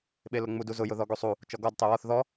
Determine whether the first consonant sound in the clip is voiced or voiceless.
voiced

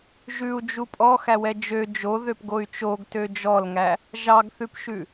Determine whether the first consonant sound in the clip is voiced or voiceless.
voiced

